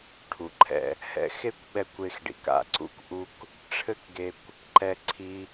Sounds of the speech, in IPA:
ʈʰ u˩ ǃʰ ɛ̰˧ | h ɛ̰˧ x e˥ kʷ ɓ ɛ˧ kʷ e˧ x ɖ ḭ˩ k a̰˧ ǀ ṵ˥ k ʔ u˥ k | ʈ͡ʂʰ ɘ˥ k ɡ e˧ kʷ | ǃ ɛ˧ ǀʰ i˧

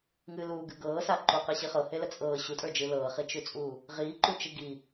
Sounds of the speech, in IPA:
ŋ ɨ l uː ɡ ɨ ɡ ɤː s a ǃ u q ɨ ɕ i χ ɤ h e l ə t͡sʼ ɤː ɕ u tʼ ə˞ d͡ʒ ɨː l ɤː χ i t͡ʃ ʉ t͡sʼ uː | ʁ iː ǃ u t͡ʃ ɨ ɡ i

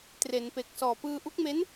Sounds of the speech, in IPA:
t r e˩˦ n p e˨˩ k̚ s ɔː˨˩ p ɯː˧ ʔ u˦˥ k̚ m e˦˥ n

